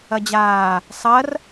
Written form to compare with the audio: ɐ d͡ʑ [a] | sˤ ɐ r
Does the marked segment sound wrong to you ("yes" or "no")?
yes